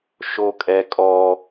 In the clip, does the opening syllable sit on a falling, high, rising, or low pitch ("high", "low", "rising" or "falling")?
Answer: high